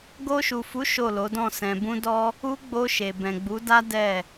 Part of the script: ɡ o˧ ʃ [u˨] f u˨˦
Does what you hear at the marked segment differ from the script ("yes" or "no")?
no